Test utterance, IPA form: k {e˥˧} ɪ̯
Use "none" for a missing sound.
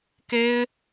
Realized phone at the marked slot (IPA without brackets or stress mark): e˥